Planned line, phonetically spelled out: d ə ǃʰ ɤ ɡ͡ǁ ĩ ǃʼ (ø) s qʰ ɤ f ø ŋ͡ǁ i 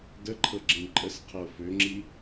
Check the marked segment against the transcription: incorrect: ə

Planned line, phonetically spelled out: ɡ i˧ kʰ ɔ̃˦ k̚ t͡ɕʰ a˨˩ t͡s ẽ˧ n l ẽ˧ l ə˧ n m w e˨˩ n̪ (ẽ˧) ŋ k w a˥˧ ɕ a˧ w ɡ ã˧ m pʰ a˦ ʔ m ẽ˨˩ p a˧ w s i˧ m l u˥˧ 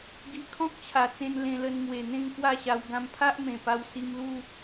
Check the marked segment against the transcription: incorrect: ẽ˥˧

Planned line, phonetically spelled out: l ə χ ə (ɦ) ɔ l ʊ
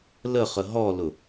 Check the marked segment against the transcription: correct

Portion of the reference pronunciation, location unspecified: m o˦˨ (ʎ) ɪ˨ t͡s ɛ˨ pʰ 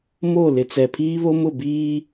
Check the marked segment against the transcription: incorrect: l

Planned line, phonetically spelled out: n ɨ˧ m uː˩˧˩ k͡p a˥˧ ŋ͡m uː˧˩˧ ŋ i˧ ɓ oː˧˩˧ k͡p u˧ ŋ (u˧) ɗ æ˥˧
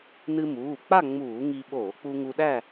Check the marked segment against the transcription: correct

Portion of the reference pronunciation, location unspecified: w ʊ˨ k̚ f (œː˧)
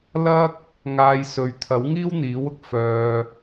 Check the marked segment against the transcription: correct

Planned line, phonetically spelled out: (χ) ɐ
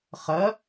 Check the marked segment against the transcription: correct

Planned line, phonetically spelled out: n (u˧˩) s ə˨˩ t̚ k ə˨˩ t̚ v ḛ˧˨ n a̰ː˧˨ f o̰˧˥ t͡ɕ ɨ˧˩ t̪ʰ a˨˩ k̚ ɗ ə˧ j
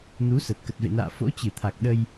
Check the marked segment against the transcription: incorrect: u˨˦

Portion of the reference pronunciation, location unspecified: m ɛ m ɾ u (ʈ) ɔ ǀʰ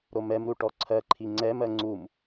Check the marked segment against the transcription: correct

